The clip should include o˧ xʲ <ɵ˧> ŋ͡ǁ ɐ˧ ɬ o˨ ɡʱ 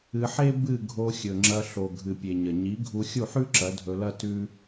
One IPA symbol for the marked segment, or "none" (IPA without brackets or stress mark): ɵ˨